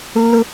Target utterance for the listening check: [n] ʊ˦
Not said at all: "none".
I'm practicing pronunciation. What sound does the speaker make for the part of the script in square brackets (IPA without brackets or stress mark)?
lː